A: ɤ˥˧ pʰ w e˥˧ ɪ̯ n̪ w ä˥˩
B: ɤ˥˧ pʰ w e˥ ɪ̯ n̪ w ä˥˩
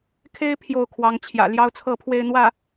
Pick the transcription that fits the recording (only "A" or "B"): A